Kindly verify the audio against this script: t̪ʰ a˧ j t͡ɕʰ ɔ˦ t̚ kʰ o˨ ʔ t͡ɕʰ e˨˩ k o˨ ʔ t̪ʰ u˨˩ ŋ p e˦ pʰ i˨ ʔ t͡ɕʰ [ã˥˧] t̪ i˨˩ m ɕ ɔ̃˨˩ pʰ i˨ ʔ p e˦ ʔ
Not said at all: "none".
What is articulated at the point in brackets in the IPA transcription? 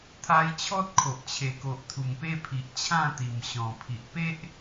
ã˥˧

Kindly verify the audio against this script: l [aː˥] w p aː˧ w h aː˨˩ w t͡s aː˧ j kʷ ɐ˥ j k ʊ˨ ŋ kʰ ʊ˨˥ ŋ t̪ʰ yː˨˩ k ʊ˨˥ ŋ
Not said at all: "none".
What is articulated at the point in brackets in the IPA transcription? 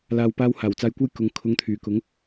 aː˨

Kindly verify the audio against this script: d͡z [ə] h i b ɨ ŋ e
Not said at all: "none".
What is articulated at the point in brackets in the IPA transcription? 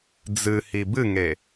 ɨ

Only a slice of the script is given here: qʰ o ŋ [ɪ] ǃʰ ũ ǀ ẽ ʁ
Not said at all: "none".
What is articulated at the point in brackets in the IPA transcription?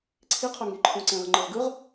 i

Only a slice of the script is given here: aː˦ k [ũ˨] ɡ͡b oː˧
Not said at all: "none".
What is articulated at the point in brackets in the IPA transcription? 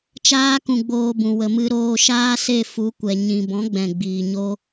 ũ˧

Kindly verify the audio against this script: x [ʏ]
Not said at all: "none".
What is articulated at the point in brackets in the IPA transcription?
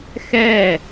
ɛ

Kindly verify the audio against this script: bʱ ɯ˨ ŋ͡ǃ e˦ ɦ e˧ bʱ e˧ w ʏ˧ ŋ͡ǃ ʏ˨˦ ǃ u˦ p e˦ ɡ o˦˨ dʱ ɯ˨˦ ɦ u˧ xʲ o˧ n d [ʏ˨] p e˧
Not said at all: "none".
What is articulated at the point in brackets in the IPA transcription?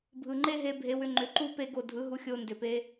ʏ˨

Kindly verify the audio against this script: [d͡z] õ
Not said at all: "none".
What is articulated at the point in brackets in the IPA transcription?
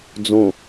d͡z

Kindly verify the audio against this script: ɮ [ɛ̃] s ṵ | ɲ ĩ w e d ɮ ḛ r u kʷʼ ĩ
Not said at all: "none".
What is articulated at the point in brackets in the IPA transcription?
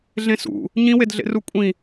ẽ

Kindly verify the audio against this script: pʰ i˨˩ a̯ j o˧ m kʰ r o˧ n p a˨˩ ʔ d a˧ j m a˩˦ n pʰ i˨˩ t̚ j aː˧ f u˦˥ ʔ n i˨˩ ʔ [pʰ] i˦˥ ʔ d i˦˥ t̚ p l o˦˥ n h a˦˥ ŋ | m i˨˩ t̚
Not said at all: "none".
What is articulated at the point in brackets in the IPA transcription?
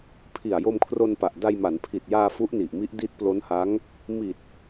m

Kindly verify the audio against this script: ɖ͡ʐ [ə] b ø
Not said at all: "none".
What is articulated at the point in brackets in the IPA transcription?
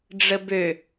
ə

